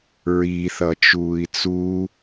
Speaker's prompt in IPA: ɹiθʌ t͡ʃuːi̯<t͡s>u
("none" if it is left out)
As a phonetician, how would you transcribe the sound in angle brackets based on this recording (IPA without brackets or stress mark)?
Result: t͡s